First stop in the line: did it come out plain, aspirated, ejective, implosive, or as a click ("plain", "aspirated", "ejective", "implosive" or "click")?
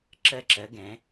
click